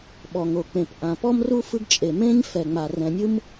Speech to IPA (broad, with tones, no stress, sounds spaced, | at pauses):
ɓ ɔ˩ ŋ o˩ k͡p ẽ˩ p ʔ ã˩ p ɔ˥ m r u˥ f ɯ˥ ɡ t͡ʃʼ e˩ m ẽ˥ ɲ f ɛ˩ ŋ͡m a˩ r ɛ̃˩ nʲ ɯ˥ m